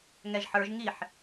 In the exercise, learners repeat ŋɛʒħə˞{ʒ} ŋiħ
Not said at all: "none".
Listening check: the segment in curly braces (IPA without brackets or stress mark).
ʒ